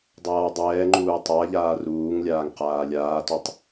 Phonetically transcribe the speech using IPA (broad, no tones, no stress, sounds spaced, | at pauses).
dˤ aː w dˤ ɛː ŋ͡ǃ uː tˤ a ʎ aː r uː ŋ lʲ aː ŋ q aː lʲ aː t u tˤ